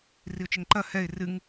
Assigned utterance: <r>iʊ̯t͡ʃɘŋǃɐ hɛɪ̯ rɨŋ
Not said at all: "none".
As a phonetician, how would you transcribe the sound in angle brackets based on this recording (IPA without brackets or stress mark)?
r